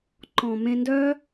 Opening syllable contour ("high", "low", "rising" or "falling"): low